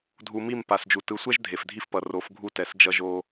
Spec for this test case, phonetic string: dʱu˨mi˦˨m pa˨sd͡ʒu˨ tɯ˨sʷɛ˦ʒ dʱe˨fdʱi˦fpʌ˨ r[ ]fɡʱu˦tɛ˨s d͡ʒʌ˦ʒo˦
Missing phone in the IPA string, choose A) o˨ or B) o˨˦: B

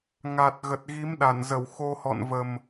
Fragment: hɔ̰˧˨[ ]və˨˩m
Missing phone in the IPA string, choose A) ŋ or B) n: B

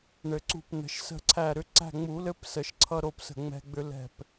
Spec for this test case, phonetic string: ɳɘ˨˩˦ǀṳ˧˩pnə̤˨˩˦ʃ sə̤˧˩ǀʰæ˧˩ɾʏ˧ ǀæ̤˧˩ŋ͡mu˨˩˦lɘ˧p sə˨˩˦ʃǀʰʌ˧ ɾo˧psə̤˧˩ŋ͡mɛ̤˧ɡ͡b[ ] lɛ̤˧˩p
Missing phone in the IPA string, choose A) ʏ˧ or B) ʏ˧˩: A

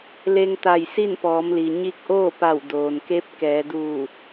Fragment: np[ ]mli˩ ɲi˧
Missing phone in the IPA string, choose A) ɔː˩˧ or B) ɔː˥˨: A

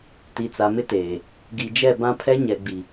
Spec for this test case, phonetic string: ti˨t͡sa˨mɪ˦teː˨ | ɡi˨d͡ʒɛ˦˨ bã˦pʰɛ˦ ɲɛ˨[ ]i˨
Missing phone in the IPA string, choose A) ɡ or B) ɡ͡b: B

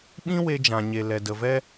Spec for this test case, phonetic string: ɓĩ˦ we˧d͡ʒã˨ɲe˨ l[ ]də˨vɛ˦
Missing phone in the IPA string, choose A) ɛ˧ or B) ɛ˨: B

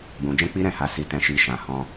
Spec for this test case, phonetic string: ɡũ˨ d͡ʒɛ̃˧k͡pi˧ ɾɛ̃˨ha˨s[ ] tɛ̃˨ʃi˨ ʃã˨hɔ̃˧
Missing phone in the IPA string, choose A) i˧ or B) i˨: B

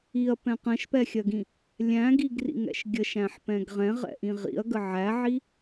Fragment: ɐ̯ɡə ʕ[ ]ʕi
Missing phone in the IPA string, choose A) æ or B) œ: A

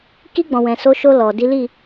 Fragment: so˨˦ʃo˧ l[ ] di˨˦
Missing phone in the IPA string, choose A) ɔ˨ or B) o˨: A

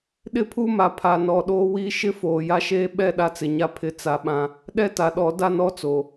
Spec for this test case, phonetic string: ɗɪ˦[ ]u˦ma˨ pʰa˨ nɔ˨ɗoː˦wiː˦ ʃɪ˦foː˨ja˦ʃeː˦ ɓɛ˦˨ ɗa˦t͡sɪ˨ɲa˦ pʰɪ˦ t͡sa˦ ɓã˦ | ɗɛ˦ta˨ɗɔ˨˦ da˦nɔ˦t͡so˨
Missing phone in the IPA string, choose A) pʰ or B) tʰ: A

